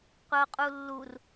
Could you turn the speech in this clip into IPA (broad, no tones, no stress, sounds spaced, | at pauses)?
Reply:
qʷ ɘ o̯ qʼ u lː u r